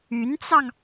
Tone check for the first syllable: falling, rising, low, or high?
rising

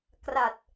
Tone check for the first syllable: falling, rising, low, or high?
low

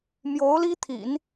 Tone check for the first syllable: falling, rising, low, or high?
rising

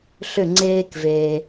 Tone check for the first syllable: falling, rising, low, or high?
falling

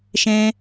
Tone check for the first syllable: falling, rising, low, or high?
high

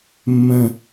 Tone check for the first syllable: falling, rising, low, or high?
low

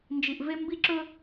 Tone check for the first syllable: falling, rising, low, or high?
low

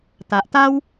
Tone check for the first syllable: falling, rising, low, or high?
low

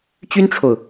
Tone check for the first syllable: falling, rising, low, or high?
high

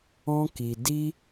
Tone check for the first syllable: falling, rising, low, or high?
high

